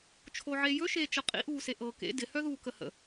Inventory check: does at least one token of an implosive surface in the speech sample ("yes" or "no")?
no